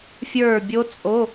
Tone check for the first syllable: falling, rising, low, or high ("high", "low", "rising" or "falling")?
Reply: falling